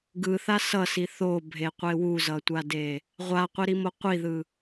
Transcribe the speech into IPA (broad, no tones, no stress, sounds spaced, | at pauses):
ɡ ɯ θ a s ʌ s i θ o bʱ e qʷ e w u z ʌ tʷ a d e | ʁʷ a qʷ i ɾ i m o qʷ i ð ɯ